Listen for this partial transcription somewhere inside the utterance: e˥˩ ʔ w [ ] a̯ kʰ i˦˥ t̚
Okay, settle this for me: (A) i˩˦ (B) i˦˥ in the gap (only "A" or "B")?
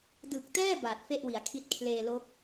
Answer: A